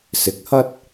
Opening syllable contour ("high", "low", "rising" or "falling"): rising